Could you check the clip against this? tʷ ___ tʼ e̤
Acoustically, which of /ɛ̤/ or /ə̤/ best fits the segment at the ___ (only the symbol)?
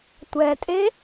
ɛ̤